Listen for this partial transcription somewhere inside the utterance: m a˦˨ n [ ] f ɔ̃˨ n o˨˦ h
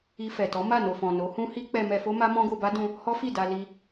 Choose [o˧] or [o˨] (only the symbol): o˨